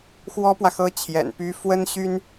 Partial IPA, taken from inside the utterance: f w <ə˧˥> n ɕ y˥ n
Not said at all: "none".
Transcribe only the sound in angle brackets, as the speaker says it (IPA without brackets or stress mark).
ə˥